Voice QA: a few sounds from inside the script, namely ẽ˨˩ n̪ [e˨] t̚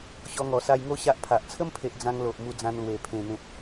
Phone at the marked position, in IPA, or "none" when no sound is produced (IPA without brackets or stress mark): ẽ˨